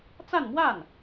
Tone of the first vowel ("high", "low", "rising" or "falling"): falling